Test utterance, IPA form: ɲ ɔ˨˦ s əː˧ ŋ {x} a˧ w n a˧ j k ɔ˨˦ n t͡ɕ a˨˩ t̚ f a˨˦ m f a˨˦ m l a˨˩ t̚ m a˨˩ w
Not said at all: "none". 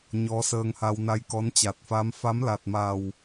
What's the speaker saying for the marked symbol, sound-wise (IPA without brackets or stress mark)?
h